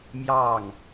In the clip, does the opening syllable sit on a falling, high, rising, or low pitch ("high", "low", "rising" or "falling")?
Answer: falling